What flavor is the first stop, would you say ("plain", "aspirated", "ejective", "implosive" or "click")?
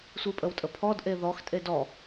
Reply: ejective